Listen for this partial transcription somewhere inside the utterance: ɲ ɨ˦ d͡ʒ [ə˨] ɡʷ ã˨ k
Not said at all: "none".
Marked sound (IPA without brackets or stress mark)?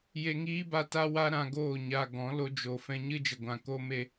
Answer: ə˨